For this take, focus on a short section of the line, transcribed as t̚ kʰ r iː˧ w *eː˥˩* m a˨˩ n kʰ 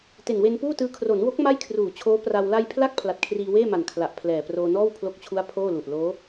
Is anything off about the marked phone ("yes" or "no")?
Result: no